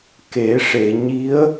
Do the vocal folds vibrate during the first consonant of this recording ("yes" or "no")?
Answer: no